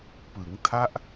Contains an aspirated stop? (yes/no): yes